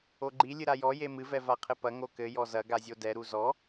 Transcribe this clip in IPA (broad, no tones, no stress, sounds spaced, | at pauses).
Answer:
o ɡ͡ǃ i lʲ ɨ ɾ a j ɔ j e m ɨ v ɛ v a qʰ ɘ p ɐ ŋ o k ɘ j ɔ z ɐ ɡ a zʲ o d ɛ ɾ u z ɔ